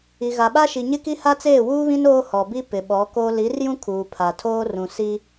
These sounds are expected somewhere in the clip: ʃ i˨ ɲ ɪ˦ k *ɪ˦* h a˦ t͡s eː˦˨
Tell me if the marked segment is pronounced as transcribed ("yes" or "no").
no